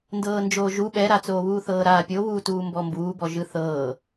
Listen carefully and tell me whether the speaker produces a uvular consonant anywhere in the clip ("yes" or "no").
no